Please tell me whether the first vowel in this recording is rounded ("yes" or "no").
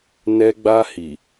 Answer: no